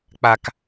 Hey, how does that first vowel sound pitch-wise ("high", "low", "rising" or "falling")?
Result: low